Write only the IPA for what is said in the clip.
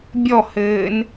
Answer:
bʲ ɔ h ɘː n

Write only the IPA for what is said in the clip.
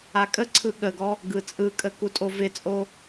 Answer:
a kʼ ə ǀʰ ɯ ɠ ə ɡ ɔ | ɡ ɯ t͡sʼ ɯ kʼ ə k u tʼ o v ɪ t͡sʼ o

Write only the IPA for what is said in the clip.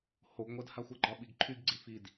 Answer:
h o ɡ ŋʷ ɜ d h a xʷ ə ɡ͡ǃ ɒ ɓ i ɡ ǃʰ y ɡ ɡ͡ǀ i f i d

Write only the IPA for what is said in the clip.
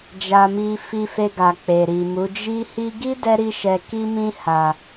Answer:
d͡ʒ a˧ m i˧ f i˧ f e˧ ɡ a˨ k͡p e˨ ɾ i˨ m u˨˦ d͡ʒ i˦ h i˧ ɡ i˦ d ɛ˧ ɾ i˧ ʃ ɛ˨ k i˧ m ĩ˧ h a˨

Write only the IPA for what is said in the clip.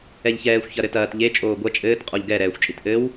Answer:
ɛ ʎ ç ɛː xʷ ç ɐ ɾ ɘ t ɐː t ʎ e t͡ʃʼ oː ɡʷ ɐ t͡ʃʼ ɘː t qʼ ɔ ʎ ɡ ɛ ɾ ɛː xʷ t͡ʃʼ i t ʔ ɘ w

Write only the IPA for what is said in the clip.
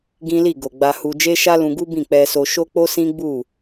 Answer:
ɡ ĩ˦ l i˦˨ ɡ o˨ ɡ͡b a˧ h u˧ d͡ʒ e˦ ʃ a˦ l ũ˧ ɡ u˦ b ĩ˦˨ k͡p ɛ˧ s o˧ ʃ o˦ k͡p o˦ s ĩ˦ ɡ͡b u˦˨

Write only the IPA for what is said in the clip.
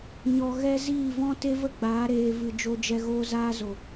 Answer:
ɲ ɔ˧ ɣ ɛ˦ z iː˦˨ v ɔ̃˦ t e˦ v ə˦ ɡ͡b aː˨˦ ɾ eː˧ v ɨ˧ d͡ʒ o˧ d͡ʒ ɛ˧ ɣ oː˧ z aː˧ z o˨

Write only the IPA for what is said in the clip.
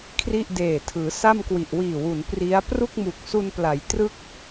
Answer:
kʰ r i˥˩ ʔ d eː˨˩ tʰ ɯː˩˦ s a˥˩ m k w i˨˩ ʔ w iː˨˩ w u˩˦ n p r i˦˥ a̯ p r u˥˩ k̚ m u˨˩ k̚ s u˧ n p l a˩˦ j t r ɯ˦˥ k̚

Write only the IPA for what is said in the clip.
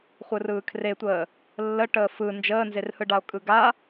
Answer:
χʷ ɯ r ɯː kʰ r e tʷ əː | lː ə ʈ əː f ɯ n d͡ʒ əː n z e r h ɯ ɖ a o̯ kʼ ɯ ɡ a

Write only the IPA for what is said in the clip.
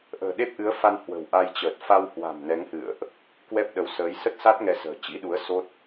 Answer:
ʔ ə̤ː˨˩ ɗ e˦˥ p̚ ʔ ɨ˨˦ ə̯ f a˧ n h w ə̤˨˩ w ʔ a˧ j t͡ɕ əː˨˩ t̚ f a˧ w h w a̤˨˩ m n ɛ˨˦ ŋ h ɨ̰˧˨ ə̯ ʔ | k w ɛ˦˥ p̚ ɗ ə˨˦ w s əː˨˦ j s ə˦˥ t̚ s a˦˥ t̚ ŋ ɛ˧ s ə̤ː˨˩ t͡ɕ ḭ˧˥ ɗ u˨˦ ə̯ s o˦˥ t̚

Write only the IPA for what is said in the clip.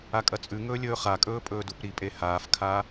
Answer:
a kʼ ɐ t͡sʼ ʉ ŋ ɵː lʲ ɵː χ a kʼ ɵː pʼ ɵː d u p ɾ i pʼ e h aː f kʰ a

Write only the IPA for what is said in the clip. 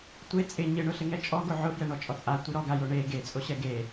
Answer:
tʷ e t͡sʼ ɪ ɲ ɪ ɳ ʊ ɬ ɪ ŋ ɛ t͡ʃʼ ɔ ɡ o ʕ ʊ f j ɛ ɳ ɔ t͡ʃʼ ɔ t͡sʼ a tʷ i ɾ ɔ ɡ a j o ɳ e ɡ e t͡sʼ o ɕ ɛ ɡ e

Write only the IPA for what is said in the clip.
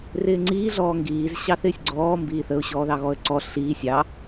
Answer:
r ɪː ŋ͡ǀ iː ɮ ɔː ŋ ɡ iː z ɕ ɑ θ ɪː sʲ ɡ͡ǀ ɔː m b iː θ ə ʊ̯ ɕ ɔː ð ɑ ɣ ɔ ə̯ ǀ ɔ ɬ iː sʲ ɑ

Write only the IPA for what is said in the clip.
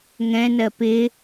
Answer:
ŋ ɛ̃ n ɜ p ɪ

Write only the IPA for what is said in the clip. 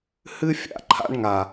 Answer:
h ɨ˦ fʲ a̰˨ ǃʰ a̰˦ ɳ ŋ a˨

